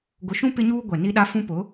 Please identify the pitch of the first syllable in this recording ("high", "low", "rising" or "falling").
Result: low